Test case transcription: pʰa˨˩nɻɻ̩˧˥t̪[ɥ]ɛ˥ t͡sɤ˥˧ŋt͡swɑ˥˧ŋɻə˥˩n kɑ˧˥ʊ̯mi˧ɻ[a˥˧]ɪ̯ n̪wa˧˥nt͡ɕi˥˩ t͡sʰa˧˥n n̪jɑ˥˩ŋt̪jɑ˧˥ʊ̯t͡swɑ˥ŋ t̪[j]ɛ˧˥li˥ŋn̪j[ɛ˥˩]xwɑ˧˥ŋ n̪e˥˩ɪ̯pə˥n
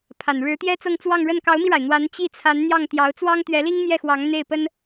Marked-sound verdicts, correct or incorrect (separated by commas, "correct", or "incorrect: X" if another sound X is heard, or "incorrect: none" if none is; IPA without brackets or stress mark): incorrect: j, incorrect: a˩, incorrect: ɥ, correct